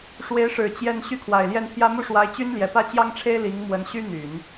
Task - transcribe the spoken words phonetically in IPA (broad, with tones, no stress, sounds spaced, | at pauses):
ʂ w e˧˥ ɪ̯ ʂ ɻ̩˨˩ t͡ɕ j ɛ˥˧ n ɕ y˥˩ kʰ w a˨˩ ɪ̯ l j ɛ˥˩ n pʰ j ä˥ m u˥˩ ʂ w a˧˥ ɪ̯ t͡ɕ y˥ n l j ɛ˨˩ p ä˥ t͡ɕ j ɑ˥ ŋ ʈ͡ʂʰ e˥ ɪ̯ l i˧˥ ŋ m w ə˧˥ n ɕ y˥ n̪ y˨˩˦ n